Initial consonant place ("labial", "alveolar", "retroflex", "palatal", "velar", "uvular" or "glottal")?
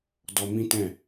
alveolar